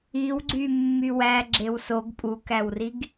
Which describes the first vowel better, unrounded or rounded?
unrounded